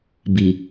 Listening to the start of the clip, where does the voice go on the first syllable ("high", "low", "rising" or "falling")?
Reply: low